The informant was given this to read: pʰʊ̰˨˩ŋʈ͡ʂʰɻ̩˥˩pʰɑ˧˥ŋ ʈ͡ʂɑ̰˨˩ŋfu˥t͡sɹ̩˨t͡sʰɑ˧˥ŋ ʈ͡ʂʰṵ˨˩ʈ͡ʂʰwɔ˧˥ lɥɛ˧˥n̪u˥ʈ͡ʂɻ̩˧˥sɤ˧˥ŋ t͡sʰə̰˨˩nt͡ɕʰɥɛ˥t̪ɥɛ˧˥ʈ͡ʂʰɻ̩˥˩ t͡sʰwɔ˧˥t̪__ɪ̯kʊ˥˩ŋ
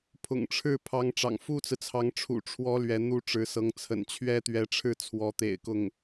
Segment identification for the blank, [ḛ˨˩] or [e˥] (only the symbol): ḛ˨˩